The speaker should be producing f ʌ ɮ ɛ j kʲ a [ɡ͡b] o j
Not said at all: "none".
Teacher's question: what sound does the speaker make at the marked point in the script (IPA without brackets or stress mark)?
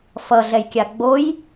ɡ͡b